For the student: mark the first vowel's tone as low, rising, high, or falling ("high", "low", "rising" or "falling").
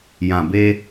low